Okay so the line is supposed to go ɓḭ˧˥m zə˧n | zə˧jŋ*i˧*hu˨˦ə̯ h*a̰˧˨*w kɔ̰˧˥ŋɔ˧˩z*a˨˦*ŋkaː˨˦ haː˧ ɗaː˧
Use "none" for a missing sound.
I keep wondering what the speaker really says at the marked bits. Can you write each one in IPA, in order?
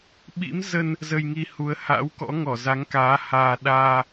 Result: i˧, a̰˧˥, a˨˦

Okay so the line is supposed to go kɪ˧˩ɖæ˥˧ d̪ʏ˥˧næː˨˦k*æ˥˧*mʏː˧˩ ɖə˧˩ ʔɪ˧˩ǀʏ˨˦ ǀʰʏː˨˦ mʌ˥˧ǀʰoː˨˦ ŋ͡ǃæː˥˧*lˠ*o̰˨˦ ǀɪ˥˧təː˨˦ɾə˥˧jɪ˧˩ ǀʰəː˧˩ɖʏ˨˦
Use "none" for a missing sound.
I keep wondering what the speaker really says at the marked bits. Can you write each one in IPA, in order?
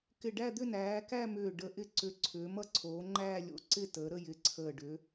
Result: æ˥˧, lʲ

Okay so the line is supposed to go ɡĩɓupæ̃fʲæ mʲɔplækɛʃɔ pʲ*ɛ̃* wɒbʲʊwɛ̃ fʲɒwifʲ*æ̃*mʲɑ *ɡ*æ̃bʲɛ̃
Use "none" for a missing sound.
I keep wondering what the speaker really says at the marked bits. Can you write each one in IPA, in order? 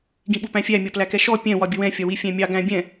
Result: ɛ̃, æ̃, ɡ

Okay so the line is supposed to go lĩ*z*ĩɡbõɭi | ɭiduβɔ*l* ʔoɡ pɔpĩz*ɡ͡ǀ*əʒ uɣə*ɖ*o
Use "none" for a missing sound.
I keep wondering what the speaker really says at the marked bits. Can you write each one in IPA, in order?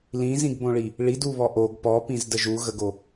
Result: z, none, d, ɡ

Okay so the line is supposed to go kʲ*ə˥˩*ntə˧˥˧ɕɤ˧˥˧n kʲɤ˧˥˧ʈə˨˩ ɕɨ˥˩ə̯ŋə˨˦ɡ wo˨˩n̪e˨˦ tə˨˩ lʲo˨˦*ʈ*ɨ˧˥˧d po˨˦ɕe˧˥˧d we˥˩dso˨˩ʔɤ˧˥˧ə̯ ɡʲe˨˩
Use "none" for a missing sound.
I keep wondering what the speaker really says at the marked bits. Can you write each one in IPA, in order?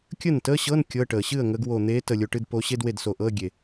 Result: ə˥˩, ʈ

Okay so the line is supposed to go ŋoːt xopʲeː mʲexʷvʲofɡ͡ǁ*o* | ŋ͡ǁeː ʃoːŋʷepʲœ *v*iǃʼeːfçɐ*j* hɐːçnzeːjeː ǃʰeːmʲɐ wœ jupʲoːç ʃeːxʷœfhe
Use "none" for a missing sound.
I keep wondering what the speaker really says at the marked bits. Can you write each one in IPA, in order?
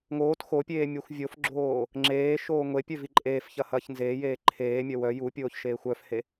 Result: oː, v, none

